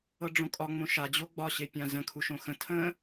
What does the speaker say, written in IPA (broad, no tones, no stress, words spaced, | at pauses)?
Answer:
ɤɖ͡ʐõkʼɒ ŋ͡mõʃa d͡ʑoɡ͡bɒ ɕepʲãzə̃ kʰuʃõxə̃ tʰə̃